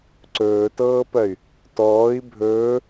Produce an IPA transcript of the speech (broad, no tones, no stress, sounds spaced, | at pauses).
ǀ ɵː t ɤː p ɜ y̯ | t ɔː i̯ bʱ ɵː